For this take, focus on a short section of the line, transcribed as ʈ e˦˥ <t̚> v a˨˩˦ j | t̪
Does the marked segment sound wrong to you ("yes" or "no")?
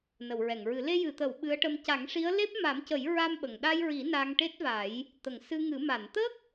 no